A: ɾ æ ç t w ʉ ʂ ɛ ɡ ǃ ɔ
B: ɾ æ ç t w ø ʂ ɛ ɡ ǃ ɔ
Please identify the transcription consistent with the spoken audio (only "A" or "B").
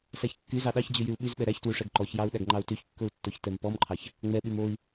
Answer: A